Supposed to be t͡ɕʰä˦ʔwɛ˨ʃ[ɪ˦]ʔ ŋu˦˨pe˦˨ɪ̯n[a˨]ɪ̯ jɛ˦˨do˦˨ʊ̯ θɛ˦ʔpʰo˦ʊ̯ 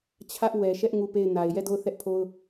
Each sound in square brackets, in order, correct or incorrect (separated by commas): incorrect, correct